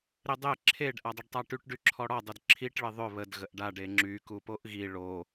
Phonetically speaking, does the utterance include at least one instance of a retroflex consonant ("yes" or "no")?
yes